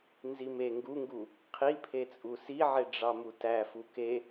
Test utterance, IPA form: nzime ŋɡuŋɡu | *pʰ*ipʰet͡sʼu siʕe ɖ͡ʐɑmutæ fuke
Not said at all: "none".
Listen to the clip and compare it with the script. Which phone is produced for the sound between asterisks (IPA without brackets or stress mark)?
qʰ